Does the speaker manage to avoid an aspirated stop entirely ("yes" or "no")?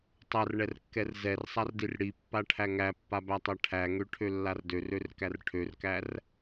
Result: no